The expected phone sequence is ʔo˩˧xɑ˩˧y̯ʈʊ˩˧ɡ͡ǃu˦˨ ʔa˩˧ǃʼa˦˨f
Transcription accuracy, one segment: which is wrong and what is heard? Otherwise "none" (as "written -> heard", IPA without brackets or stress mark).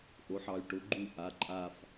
x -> ħ